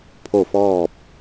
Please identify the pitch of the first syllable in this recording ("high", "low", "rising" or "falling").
falling